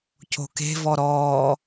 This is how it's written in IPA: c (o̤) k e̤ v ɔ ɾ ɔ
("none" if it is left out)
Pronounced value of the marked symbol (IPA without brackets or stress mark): o̤